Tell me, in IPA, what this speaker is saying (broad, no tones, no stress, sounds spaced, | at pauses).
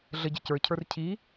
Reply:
ɮ ə ɟ ɨ c ə˞ cʰ ə˞ r cʰ i